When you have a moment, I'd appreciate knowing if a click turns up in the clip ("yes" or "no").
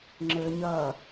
yes